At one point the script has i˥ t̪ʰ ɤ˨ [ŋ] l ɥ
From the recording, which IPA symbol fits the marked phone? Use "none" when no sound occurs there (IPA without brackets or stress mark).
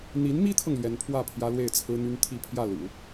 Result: ŋ